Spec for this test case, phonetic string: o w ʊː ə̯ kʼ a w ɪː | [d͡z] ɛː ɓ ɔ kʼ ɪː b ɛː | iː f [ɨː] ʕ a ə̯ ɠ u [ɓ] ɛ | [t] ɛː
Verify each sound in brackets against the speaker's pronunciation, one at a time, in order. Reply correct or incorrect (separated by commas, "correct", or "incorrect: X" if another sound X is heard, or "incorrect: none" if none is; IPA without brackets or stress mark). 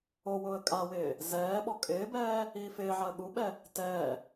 incorrect: z, incorrect: ɪː, correct, correct